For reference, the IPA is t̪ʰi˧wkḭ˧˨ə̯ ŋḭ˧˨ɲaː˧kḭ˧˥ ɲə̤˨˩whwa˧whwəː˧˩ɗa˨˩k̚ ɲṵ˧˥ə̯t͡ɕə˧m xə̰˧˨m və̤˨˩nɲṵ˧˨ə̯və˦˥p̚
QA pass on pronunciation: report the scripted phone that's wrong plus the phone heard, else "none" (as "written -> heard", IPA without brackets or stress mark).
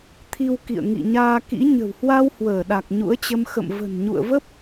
none